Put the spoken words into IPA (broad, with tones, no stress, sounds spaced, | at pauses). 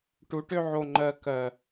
ʈ u˨˦ ʈ ø˦ ʕ o˨ ŋ͡ǃ ɜ˨ k ɜ˨